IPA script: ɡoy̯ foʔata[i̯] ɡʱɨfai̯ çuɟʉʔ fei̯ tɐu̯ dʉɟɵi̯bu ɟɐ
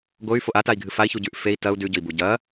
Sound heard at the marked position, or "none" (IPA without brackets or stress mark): i̯